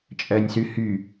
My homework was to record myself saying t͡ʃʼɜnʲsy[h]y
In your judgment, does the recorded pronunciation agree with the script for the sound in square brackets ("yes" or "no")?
yes